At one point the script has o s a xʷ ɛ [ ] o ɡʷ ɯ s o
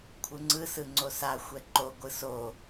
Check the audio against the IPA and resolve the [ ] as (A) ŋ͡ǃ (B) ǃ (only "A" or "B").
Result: B